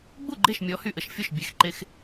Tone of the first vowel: falling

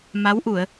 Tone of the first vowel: rising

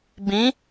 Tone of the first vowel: rising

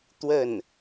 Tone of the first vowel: falling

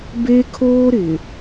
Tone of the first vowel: high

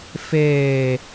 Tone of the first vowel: low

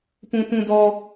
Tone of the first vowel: high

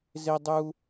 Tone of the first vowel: high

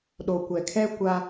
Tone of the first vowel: low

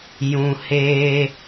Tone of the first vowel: low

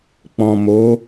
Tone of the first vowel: low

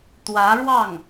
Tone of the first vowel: rising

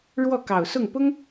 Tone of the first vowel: falling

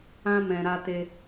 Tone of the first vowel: high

